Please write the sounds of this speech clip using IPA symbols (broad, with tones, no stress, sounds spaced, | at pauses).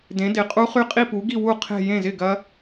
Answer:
d ẽ˨˥ d ɪ˨˥ qʼ u˦˥ χ y˦˥ qʼ i˥˧ p u˨˥ ɡ i˥˧ w u˥˩ qʰ e̤˥˧ j ẽ˥˩ z ɪ˥˩ ɡ ɐ˦˥